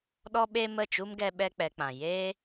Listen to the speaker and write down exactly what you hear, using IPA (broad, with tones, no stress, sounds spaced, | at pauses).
ɗ ɔ˦ ɓ e˦ m ə˦˨ t͡ʃ u˦ m ɡ ɛ˦ ɓ ɛ˦ k͡p ɛ˧ k͡p ã˨ j eː˦